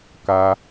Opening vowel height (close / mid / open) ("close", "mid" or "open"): open